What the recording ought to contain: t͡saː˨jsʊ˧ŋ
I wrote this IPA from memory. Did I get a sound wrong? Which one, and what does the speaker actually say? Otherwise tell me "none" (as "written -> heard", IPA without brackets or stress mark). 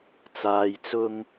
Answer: s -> t͡s